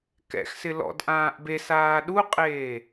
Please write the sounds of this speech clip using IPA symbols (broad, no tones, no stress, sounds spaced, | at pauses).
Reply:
k ɛ̰ x s ɪ l ɔ̰ d ʔ ãː ʔ b e s aː ɗ u qʼ eː